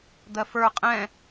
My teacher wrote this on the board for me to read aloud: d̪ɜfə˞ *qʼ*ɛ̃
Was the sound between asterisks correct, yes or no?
yes